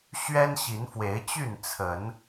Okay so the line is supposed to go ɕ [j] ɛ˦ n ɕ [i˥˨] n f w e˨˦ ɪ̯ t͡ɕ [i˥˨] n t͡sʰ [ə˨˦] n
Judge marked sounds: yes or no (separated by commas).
no, no, no, yes